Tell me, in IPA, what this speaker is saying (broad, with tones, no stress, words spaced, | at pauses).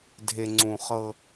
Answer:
dʱe˨ŋ͡ǀũ˨χɤ˦